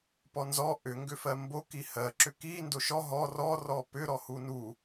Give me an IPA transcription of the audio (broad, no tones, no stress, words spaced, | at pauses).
pɔnzɔ ʔʏ ŋɡʏfɜmbo kihɜ ǁʏki ndoʃɔ ɦɔ rɔ rɔpʏɾɔ hunu